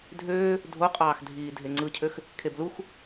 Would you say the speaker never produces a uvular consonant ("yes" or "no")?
no